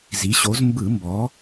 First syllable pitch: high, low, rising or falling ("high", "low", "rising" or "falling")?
rising